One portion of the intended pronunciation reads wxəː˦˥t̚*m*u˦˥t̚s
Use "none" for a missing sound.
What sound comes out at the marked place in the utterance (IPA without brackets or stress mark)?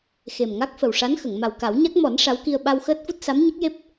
f